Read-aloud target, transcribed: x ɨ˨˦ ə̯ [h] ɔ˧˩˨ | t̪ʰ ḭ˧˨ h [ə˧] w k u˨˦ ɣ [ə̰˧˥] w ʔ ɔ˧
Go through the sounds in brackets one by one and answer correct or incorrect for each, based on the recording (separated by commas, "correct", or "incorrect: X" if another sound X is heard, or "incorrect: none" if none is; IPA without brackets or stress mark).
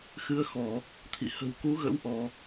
incorrect: x, incorrect: ə̤˨˩, correct